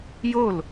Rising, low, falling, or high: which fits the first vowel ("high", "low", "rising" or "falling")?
falling